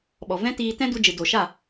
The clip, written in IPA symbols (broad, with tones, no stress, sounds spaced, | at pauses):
ɓ ɔ˨ v ɛ̃˦ t iː˧ t ɛ̃˦ d u˧ d͡ʒ ɨ˨ d o˨ ʃ a˦˨